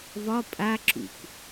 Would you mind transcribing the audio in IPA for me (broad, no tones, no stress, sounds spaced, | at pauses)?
v ɒ pʼ a ǁ ṵ k